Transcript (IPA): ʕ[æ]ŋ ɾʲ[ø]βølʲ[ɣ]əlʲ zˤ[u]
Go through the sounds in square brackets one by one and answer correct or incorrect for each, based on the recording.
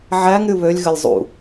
correct, incorrect, correct, incorrect

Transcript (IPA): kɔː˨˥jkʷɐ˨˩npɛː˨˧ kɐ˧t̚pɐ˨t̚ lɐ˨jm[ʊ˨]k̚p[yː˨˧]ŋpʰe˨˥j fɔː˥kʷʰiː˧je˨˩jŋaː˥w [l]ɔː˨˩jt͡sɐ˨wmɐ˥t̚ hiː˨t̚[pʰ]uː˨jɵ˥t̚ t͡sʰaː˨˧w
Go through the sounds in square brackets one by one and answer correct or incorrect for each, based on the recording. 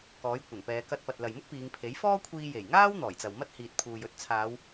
incorrect, incorrect, incorrect, correct

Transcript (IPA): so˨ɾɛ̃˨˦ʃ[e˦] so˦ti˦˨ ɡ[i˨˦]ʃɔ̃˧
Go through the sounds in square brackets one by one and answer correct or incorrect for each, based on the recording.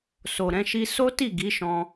incorrect, correct

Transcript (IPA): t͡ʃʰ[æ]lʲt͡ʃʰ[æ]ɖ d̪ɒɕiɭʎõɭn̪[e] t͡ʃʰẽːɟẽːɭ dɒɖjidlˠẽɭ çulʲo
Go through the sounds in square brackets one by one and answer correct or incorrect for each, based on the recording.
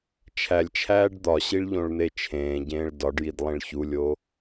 correct, incorrect, correct

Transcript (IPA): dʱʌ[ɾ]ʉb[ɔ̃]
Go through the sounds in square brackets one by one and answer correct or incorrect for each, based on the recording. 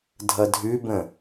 incorrect, incorrect

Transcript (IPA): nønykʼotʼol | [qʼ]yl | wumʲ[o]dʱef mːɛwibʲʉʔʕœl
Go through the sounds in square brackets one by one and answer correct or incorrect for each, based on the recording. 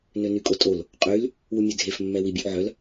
correct, incorrect

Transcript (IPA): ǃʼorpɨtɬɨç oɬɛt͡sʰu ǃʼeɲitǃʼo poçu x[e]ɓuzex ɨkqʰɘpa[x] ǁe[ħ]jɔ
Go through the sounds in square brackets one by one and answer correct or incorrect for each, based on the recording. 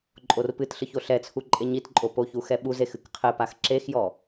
incorrect, correct, incorrect

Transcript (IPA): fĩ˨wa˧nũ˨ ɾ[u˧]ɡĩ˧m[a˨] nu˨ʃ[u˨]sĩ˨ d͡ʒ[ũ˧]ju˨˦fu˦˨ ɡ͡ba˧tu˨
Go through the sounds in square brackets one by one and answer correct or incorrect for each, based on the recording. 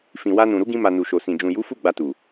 incorrect, correct, incorrect, incorrect

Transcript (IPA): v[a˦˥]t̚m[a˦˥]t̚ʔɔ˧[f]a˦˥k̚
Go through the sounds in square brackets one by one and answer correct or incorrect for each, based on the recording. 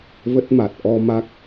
incorrect, incorrect, incorrect

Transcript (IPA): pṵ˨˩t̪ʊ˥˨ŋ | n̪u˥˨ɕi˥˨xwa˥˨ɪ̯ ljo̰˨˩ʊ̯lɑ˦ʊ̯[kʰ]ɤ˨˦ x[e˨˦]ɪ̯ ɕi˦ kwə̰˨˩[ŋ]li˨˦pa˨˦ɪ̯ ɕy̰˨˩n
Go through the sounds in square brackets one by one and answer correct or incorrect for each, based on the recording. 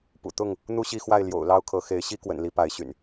correct, correct, incorrect

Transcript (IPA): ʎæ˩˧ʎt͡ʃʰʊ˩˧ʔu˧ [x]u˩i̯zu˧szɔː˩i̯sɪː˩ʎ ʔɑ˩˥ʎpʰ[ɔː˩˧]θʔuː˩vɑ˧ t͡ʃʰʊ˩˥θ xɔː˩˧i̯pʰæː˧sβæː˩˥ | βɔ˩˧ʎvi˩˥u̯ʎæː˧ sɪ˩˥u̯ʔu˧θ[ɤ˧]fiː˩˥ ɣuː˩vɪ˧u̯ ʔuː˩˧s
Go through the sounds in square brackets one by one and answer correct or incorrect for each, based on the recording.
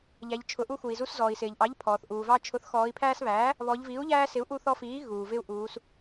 correct, incorrect, incorrect

